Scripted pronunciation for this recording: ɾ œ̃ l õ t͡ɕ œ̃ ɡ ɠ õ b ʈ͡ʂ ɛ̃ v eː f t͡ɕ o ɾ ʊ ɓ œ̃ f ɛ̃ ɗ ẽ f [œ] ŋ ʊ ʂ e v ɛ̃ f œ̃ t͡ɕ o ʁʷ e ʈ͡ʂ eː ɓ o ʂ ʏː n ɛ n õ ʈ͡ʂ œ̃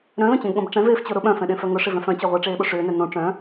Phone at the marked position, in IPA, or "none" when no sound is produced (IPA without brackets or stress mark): œ